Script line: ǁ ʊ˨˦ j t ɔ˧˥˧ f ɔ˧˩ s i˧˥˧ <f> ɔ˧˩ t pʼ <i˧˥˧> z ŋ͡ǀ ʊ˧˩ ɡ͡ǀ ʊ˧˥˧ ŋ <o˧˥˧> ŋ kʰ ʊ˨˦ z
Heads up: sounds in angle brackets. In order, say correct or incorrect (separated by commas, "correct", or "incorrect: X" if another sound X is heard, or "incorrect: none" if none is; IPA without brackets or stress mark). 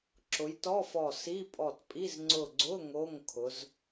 incorrect: pʼ, correct, correct